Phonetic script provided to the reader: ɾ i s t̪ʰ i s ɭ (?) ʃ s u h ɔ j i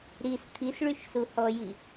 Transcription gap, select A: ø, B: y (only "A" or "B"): B